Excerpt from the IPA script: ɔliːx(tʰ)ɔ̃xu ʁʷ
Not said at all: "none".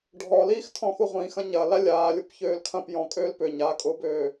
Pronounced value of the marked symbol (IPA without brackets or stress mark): tʰ